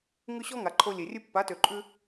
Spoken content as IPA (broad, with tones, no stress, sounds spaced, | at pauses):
ŋ ʉ˦ ɕ ɔ˦ ŋ a˨ ǃʰ o˧ lʲ e˨ rʲ ʉ˦ pː a˨˦ t ø˨ ǃʼ ʉ˦